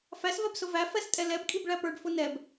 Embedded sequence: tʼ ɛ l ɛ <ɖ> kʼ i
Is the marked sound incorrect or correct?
incorrect